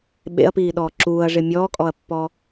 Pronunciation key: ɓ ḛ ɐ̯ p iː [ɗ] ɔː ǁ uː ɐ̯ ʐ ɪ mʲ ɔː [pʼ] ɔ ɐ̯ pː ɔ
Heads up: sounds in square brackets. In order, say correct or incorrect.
correct, incorrect

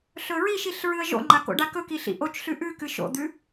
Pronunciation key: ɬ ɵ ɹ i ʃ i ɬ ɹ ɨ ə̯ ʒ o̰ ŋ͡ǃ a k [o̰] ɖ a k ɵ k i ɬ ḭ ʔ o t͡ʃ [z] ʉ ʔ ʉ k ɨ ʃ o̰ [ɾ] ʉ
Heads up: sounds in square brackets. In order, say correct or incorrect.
correct, incorrect, incorrect

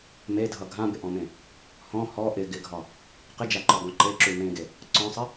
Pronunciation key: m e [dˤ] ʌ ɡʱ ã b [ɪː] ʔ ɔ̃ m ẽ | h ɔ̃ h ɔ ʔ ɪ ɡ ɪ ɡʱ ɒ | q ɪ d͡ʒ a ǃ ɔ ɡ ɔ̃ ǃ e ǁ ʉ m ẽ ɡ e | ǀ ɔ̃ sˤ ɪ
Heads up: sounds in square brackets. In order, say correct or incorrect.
incorrect, incorrect

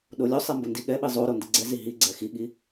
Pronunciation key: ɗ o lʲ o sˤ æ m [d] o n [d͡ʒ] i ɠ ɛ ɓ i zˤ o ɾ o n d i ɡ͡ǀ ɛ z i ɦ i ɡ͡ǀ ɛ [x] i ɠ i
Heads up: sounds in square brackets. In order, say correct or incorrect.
incorrect, incorrect, correct

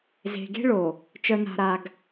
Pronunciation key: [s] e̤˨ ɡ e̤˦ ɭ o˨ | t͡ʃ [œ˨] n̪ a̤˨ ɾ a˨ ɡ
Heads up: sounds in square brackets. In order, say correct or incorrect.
incorrect, correct

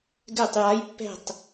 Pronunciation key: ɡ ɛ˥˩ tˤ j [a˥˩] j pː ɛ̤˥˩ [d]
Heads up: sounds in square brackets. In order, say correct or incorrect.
incorrect, incorrect

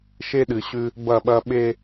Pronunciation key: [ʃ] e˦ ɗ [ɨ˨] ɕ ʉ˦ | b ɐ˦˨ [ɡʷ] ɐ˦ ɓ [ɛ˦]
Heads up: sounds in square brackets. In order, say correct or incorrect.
correct, correct, incorrect, incorrect

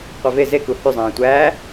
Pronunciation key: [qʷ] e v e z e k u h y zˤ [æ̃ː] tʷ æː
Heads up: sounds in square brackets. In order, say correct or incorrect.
correct, correct

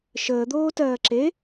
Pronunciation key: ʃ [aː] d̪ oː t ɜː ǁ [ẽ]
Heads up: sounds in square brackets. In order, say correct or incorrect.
incorrect, incorrect

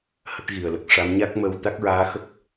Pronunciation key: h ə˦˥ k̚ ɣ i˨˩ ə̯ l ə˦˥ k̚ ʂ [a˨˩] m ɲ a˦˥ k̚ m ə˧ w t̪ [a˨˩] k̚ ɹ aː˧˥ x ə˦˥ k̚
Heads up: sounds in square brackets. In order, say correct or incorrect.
incorrect, incorrect

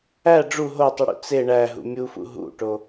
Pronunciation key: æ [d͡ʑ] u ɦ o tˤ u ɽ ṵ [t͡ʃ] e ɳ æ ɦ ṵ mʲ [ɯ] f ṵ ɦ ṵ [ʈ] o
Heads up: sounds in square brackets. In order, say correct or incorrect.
incorrect, incorrect, incorrect, correct

